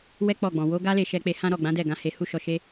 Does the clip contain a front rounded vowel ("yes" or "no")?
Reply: no